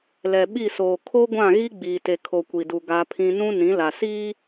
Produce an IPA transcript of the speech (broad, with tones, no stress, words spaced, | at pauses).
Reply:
lɛ˨ ɓi˦˨soː˨ kʰo˦ɡʷã˦˨ɣi˦ ɡ͡biː˨te˨kʰo˨ kʷi˨du˨ ɡa˦pʰĩ˦ nũ˦ nĩ˨˦la˨siː˦